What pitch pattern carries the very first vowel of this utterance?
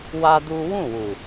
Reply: high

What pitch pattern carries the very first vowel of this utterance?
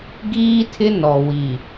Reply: high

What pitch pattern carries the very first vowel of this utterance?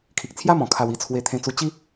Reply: low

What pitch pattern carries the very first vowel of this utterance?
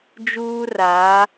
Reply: high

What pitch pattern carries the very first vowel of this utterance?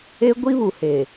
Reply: high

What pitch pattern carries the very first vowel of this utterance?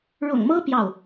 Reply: low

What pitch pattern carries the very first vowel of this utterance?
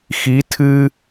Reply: rising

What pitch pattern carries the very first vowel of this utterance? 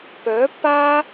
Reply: rising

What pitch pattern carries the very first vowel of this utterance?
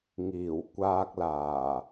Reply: low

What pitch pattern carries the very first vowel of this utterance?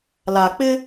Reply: low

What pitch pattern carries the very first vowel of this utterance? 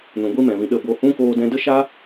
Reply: low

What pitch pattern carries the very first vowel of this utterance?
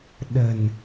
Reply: low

